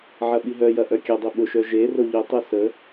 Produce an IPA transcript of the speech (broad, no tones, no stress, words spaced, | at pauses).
ʕɐɓiɦœjɐ ʔœkʲɐdˤu ɓʊʃœ ʒe roʎʊtˤø sə